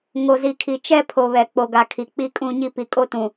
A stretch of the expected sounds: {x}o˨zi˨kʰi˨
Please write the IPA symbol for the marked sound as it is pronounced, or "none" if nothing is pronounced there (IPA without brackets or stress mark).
ŋ